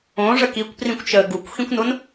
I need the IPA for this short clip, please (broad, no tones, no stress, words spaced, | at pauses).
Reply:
õʐə kikʷprĩkʷt͡ʃəː ɡukʷxĩkʷnʊn